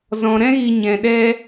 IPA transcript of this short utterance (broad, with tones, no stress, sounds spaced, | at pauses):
z ɔ̃˧ ɾ ɛ̃˦ ɣ i˧ ɲ ɛ̃˧ ɗ ɛ˦